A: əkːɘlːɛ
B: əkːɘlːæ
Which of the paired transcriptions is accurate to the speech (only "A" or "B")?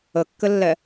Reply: A